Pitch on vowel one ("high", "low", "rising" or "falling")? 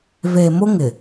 low